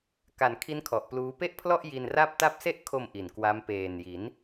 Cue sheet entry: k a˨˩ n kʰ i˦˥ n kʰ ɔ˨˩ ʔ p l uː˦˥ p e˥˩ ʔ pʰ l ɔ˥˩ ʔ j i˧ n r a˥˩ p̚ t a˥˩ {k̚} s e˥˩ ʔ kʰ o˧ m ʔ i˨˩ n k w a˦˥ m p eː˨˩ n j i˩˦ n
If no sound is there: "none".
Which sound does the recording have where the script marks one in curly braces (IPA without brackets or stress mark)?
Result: p̚